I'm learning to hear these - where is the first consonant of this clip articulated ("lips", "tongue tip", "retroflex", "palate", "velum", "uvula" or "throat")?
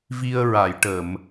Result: lips